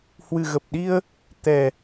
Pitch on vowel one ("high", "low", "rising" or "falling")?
low